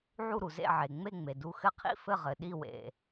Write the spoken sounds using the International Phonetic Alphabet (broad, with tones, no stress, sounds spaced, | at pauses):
ʕ u˥˩ ɾ u˩ z ḛ˥˩ ʕ e˩ ŋ͡m e˥˩ ŋ͡m e˩ d u˧ x ɘ˥˩ qʰ ḭ˥ f ɘ˥˩ ʁ ɘ˩ ɗ i˥˩ w ḛ˩